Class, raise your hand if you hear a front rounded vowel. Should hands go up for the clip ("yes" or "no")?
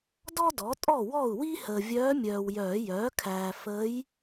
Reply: yes